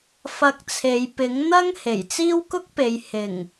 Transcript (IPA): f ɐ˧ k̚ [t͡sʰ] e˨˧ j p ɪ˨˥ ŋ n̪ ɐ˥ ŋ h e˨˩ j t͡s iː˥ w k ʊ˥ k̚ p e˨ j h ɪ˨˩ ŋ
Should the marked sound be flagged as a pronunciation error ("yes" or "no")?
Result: no